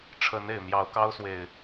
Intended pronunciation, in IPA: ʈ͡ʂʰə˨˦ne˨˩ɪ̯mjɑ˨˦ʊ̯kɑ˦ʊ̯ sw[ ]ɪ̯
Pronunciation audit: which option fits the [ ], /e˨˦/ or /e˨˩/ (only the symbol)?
e˨˩